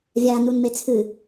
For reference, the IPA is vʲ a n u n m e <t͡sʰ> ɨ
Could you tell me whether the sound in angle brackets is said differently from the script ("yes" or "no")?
no